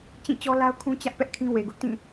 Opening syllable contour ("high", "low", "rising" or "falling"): falling